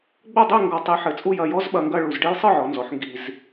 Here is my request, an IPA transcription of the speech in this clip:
ɡ͡b o˥˧ dˤ i˥˧ ŋ ɡ ɔ˧ tˤ i˧ ħ ɘ˧˩ t͡sʼ u˥˧ j ɐ˥˧ j ɔ˥ z ɓ ɐ˧ ŋ ɡ ɐ˥˧ ɭ u˧˩ z ɖ e˥ j sˤ ɨ˥˧ ʕ ɔ˩˧ n z ɔ˩˧ ħ ŋ ɡ i˧ z

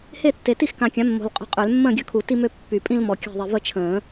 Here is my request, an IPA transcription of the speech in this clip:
h e˥˨ tː e˨ t i˥˨ x k ã˨˩˦ kʲ ã˩˥ mː o̤˨ l qʼ o̤˦ qʼ ø˨˩˦ l mː ə̃ː˥˨ ɡʲ œ˥˨ kʰ u˨˩˦ t i˦ m ø˦ pː y˨˩˦ pʼ ĩ˦ l m ɔ˨ kʲ a̤˥˨ ðˤ i˨ v ə˥˨ t͡ʃʰ ə̃ː˨˩˦

